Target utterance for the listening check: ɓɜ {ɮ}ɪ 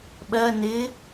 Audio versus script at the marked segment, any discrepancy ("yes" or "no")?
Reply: yes